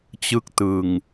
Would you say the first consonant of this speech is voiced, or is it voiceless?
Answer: voiceless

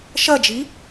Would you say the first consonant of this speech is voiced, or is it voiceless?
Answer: voiceless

